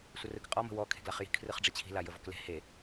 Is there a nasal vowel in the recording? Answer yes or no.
no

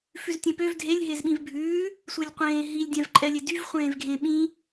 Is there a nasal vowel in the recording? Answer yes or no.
yes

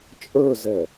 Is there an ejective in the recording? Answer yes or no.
yes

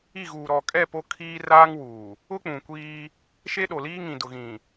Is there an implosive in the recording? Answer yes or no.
yes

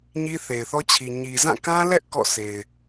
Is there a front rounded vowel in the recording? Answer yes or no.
no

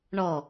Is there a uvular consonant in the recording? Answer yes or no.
no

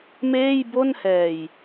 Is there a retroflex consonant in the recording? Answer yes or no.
no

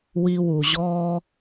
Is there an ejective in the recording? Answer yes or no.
no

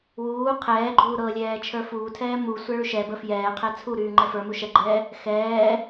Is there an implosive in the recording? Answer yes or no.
no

